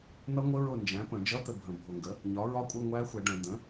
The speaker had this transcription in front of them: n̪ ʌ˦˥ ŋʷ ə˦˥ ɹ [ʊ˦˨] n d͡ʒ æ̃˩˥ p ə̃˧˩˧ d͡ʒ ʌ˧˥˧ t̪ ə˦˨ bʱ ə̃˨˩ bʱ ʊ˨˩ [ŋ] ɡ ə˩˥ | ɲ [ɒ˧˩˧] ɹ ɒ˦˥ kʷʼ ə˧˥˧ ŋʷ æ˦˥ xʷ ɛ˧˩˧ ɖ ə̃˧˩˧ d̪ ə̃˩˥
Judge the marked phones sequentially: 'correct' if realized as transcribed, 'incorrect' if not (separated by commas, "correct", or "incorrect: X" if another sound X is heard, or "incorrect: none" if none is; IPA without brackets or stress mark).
correct, correct, incorrect: ɒ˩˥